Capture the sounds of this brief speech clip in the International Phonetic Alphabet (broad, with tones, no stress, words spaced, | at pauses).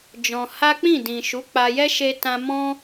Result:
d͡ʒɔ̃˧ ha˦ k͡pĩ˦˨dĩ˨ ʃu˨˦k͡pa˧jɛ˦ ʃe˧tã˧ mɔ̃˦